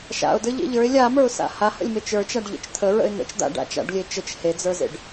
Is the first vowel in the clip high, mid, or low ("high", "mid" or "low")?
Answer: low